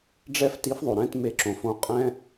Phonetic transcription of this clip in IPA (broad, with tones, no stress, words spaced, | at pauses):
ɖ͡ʐɛ˦fti˨˦fðˤo˩ɾɛ̃˥˨t me˧˩ǁõ˩fõ˨˦qʼɛ̃˦